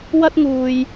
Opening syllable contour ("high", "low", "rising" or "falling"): high